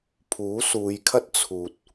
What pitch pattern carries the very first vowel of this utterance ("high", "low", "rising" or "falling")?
rising